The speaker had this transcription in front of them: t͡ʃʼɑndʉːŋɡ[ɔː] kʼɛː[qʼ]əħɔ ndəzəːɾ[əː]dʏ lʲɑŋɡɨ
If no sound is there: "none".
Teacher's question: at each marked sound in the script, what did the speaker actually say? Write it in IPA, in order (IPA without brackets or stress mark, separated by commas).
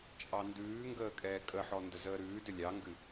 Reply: əː, kʼ, ʉː